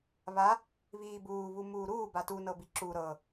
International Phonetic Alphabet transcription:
β a | β iː b uː β u m uː ɾ uː b a t u n ɤ b i ǁ u ɾ ɤ

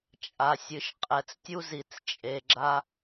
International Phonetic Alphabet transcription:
t͡ʃʼ a˨ sʲ ɨ˨ ʃ qʼ ɛ˨ t͡s tʲ u˦ z i˨ t͡s t͡ʃʼ e˨ ɡ͡ǁ a˦

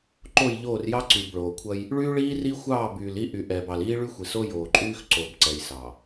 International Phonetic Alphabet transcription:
ǃ o˦˨ j ʎ oː˦˨ r j ɑ˦ ǀ y˨ b ɭ oː˨ kʷʰ ɐ˦ j | ɭ yː˦ ɭ iː˦ r i˦ xʷ ɑː˦˨ b yː˨ l i˦ ʔ y˨ ʔ ɛː˨ b ɑ˨ l iː˦ ɭ y˦ xʷ i˨ s o˦ j oː˨ ǃʼ yː˦ x ǀ o˨ b ǀ ɛ˨ j s ɑ˨

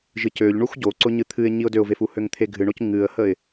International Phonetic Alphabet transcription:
ʒ ɨ c ø ʎ ɳ u x ɟ o ǀ ʊ ɲ ɨ t̪ʰ ɨ ɪ̯ ɲ i ʊ̯ d ø ʊ̯ v e f u h ø ŋ t̪ʰ e ɡʱ ɨ ɳ o c ŋ ɨ ə̯ h ə ɪ̯

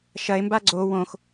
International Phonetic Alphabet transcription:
ʃ ɐ e̯ m b a ɡ͡ǀ o w õ x

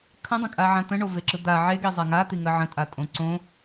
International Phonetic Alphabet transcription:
kʰ ə̃ dˤ ə̃ kʼ a ʕ ã t̪ ə̃ ɳ o v e ǁ ɯ d̪ a ʕ e ɡ i zˤ a ŋ a t̪ i ŋ ə ʕ ə̃ tʼ a tʼ õ ǀ õ

